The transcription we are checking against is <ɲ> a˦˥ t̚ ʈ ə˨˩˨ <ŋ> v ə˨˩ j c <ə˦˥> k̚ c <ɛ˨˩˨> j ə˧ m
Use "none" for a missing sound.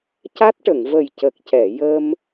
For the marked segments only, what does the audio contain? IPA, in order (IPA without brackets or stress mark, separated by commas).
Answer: c, ŋ, ə˨˩, ɛ˨˩˨